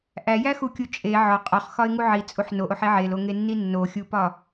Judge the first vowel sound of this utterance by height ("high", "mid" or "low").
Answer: low